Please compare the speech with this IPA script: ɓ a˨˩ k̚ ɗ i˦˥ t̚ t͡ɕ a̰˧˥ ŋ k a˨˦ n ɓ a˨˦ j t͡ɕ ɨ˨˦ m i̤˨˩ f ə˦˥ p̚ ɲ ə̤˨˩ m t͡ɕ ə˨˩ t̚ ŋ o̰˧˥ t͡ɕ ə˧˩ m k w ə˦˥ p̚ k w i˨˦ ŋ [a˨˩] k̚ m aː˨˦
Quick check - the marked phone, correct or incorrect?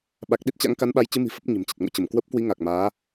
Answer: correct